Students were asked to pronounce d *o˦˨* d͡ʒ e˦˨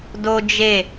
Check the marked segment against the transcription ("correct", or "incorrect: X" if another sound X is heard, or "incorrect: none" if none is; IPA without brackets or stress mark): incorrect: o˦